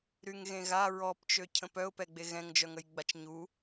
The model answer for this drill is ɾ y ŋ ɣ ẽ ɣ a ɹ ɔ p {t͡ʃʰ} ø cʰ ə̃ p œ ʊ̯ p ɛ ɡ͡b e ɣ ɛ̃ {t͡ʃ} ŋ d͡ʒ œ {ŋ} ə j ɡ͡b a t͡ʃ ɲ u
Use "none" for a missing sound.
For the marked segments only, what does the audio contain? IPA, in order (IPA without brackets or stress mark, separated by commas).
t͡ʃ, none, ŋ